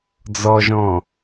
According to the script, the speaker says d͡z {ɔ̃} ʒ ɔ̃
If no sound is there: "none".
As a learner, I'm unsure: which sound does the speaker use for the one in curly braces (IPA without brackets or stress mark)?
ɔ